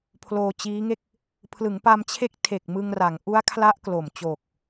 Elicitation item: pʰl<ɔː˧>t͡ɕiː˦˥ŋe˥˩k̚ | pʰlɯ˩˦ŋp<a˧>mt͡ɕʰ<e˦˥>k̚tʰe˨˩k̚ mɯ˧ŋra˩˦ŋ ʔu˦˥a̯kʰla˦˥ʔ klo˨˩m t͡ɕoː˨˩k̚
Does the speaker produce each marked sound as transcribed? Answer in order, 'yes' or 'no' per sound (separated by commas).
no, yes, yes